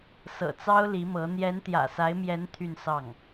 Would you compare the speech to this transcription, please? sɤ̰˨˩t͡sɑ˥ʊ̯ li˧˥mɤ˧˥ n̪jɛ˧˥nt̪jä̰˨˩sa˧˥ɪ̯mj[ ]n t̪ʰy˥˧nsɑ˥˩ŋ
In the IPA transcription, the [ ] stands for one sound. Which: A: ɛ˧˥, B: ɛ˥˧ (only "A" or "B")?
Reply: A